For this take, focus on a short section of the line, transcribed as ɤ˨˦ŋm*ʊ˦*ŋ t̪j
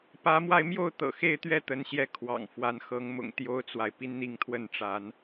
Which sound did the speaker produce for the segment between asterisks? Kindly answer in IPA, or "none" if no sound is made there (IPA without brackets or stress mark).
ʊ̰˨˩